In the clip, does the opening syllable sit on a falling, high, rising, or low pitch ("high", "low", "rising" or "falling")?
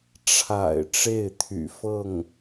low